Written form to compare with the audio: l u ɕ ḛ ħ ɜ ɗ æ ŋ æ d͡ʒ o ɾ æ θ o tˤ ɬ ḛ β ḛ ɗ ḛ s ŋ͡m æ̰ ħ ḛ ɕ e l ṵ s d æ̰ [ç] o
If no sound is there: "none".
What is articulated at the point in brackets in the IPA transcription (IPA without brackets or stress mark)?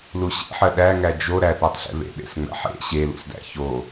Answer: ç